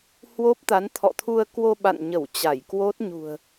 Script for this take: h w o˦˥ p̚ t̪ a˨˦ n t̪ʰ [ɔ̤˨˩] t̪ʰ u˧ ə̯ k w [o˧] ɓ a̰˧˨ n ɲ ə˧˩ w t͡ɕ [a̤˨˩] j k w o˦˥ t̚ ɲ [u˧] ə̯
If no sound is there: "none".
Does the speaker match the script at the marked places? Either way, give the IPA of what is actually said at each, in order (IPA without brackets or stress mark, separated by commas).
ɔ̰˧˨, o˧, a˧˩, ṳ˨˩